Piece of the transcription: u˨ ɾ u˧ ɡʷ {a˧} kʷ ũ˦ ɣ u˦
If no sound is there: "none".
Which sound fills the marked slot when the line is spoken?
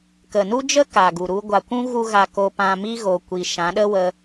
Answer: a˨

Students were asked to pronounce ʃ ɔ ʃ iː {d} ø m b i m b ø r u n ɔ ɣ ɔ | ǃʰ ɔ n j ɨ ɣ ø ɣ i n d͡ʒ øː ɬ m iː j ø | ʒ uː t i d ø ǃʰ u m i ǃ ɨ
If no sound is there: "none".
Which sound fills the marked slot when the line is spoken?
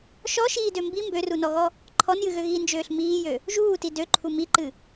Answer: d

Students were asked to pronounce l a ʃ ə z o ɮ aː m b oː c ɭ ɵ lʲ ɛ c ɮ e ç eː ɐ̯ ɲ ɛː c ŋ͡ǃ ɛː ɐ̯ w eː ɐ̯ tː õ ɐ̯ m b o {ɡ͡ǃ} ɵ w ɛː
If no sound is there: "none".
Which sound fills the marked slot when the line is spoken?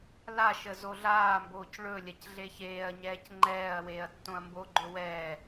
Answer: ɡ͡ǃ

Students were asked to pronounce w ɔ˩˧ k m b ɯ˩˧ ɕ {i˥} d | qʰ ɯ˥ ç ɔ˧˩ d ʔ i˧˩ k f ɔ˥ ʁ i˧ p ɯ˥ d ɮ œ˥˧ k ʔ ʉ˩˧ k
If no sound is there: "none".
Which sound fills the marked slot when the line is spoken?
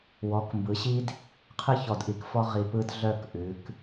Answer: i˥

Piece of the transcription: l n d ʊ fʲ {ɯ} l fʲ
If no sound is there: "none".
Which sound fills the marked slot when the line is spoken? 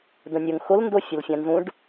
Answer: ə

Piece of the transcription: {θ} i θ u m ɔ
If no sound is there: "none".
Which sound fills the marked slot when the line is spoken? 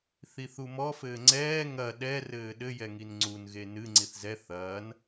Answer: θ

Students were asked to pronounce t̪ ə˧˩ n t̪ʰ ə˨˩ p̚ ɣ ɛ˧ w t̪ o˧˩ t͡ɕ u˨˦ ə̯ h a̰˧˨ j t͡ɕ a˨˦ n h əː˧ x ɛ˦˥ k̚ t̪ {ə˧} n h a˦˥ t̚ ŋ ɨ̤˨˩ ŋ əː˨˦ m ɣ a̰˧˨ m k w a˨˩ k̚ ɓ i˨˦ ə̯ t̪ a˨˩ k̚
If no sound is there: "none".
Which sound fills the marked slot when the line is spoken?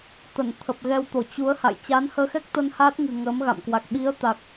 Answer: ə˧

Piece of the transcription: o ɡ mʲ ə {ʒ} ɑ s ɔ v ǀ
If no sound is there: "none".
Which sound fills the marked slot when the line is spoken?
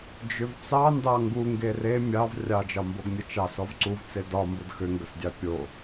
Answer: t͡ʃ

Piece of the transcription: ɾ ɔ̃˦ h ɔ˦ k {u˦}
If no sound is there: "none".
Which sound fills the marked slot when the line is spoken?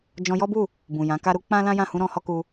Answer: u˧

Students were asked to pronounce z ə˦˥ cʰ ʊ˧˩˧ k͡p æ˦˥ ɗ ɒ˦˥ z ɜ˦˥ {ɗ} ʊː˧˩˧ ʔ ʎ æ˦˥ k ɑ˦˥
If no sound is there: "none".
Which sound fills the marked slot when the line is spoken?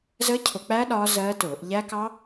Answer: t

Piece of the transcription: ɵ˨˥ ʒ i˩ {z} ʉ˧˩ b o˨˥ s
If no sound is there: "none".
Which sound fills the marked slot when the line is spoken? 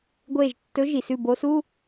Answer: s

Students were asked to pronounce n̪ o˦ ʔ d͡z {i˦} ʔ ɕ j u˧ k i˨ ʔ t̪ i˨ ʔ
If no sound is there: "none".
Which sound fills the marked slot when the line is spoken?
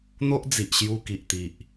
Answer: i˨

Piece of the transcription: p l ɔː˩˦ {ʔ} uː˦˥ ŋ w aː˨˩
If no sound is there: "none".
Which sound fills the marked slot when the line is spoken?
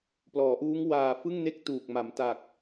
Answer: ʔ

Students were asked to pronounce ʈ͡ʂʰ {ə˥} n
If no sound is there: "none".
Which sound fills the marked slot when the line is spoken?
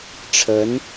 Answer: ə˧˥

